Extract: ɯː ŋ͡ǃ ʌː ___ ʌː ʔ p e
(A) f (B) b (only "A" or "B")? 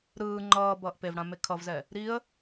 B